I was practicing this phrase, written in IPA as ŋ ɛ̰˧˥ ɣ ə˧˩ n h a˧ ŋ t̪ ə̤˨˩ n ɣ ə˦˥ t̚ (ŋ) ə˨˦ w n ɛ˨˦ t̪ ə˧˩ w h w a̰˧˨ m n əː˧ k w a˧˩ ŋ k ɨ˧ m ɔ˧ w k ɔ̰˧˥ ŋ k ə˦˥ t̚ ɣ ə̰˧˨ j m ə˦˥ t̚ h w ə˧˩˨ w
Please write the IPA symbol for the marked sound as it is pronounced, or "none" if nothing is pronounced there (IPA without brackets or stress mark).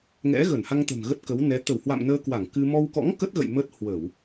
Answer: k